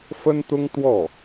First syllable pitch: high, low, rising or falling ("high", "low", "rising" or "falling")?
high